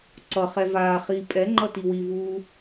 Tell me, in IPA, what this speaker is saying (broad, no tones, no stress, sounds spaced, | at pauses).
ǀ ʌ χ ɛ v aː χ iː pʼ ɛ ŋ͡ǃ ʌ t i w i v uː